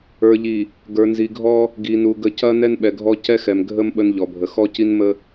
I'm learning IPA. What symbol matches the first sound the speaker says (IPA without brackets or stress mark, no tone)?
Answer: ə˞